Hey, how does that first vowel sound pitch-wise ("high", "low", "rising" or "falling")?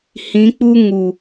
rising